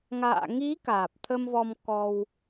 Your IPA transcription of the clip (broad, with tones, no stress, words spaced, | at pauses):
ŋa̰ː˧˨ŋi˨˦ kaː˨˩p̚t̪ʰə˧mvɔ˧m kɔ˧w